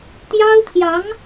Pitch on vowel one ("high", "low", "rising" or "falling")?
high